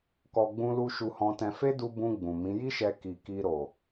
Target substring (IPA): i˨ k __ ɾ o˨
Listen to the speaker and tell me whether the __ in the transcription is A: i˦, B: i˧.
B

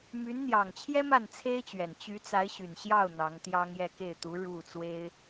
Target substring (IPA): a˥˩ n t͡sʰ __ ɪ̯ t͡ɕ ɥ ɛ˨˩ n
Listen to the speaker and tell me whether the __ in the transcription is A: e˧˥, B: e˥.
B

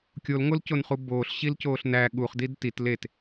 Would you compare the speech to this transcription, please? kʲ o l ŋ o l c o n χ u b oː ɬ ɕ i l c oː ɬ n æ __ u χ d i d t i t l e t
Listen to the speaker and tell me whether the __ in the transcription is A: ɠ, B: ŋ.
A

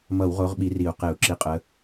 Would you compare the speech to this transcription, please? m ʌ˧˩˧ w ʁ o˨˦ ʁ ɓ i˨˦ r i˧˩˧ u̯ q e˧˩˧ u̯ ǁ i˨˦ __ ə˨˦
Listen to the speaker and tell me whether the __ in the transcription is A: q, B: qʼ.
B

